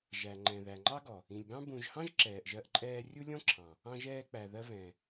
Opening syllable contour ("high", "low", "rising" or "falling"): low